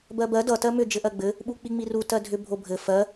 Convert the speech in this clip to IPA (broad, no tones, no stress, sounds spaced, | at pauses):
b ɜ b ɜ d ʌ t ɜ m ʏ d͡ʒ ɘ ʔ ɜ ɡ͡b ɘ | ɓ u k͡p i ŋ͡m i r u t ɜ dʱ ʏ bʱ o bʱ ɘ f ɜ